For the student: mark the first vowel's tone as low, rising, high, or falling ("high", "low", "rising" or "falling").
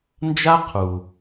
high